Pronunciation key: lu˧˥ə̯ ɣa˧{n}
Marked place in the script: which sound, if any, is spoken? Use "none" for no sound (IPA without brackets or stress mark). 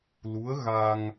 ŋ